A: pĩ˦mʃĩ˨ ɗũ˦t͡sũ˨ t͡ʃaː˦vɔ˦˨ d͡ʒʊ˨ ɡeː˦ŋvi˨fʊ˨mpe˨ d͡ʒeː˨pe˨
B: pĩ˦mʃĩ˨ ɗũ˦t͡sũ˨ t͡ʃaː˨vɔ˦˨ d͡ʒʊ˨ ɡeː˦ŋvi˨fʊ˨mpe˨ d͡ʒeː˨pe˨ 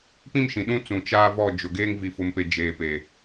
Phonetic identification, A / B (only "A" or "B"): A